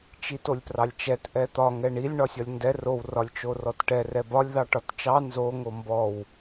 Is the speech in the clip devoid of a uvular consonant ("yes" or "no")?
yes